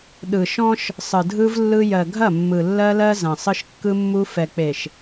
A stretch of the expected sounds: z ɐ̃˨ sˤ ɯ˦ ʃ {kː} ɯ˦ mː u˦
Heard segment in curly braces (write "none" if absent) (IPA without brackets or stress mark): kː